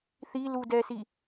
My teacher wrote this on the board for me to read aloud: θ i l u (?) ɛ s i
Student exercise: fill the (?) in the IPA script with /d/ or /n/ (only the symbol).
d